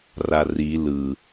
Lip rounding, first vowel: unrounded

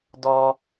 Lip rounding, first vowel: rounded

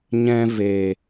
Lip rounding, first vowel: unrounded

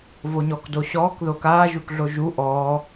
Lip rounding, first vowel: rounded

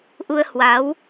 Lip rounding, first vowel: rounded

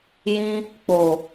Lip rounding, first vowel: unrounded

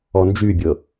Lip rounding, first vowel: rounded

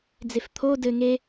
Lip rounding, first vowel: unrounded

